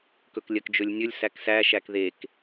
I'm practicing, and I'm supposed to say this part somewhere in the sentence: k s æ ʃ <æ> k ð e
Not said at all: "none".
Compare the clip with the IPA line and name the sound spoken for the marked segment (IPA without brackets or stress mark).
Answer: æ